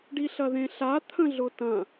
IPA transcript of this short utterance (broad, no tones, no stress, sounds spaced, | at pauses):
ɖ i ɬ ɐ ð ẽ ɬ a t̪ʰ ə̃ ɮ ʊ t ɐ̃